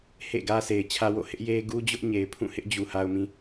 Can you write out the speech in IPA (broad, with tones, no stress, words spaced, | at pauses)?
hḛ˦˨ɡä˦sʰe˨ɪ̯ t͡ɕʰä˦wo̰˦˨ hɪ˦ʔje˦ ɡu˦d͡ʑʊ˦ʔɲe˨ɪ̯ pʰũ˦˨hɪ˦ʔd͡ʑu˨ ha˨ʊ̯mĩ˨